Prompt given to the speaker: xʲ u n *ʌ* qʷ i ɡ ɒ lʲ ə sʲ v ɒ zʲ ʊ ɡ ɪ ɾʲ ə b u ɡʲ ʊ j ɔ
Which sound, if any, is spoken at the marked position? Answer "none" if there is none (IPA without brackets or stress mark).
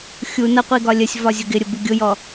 ʌ